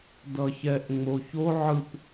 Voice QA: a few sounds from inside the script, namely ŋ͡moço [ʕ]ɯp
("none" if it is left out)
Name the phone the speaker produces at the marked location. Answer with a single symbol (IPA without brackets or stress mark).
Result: ʕ